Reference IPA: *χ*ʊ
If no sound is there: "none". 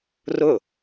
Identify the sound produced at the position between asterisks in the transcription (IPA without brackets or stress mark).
r